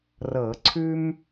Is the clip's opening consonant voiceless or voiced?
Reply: voiced